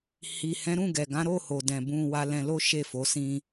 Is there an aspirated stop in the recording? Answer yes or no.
no